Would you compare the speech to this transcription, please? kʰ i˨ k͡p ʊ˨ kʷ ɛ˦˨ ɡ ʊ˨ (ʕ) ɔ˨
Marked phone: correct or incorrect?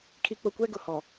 incorrect: h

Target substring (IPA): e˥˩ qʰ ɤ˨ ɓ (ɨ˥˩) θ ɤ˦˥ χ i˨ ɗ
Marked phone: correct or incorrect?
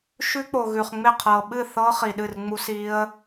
correct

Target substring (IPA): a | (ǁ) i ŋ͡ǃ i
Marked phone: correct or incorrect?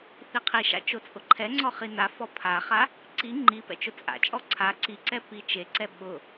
incorrect: ǀ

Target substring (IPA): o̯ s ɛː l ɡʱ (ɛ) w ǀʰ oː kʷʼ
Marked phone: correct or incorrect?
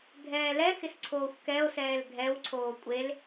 correct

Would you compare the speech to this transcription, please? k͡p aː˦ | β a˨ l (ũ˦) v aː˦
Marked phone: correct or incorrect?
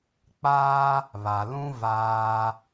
correct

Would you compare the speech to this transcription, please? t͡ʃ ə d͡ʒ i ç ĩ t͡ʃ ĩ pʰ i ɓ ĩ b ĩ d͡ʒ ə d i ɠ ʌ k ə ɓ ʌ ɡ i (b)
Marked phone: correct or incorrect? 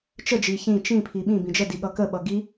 incorrect: none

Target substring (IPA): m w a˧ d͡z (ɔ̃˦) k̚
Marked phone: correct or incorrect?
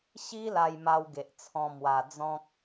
correct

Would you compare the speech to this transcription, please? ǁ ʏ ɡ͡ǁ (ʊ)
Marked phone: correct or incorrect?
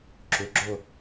correct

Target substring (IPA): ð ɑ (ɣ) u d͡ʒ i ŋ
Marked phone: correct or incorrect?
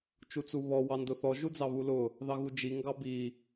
correct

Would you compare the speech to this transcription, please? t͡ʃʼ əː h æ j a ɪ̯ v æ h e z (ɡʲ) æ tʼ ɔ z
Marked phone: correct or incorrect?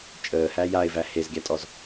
correct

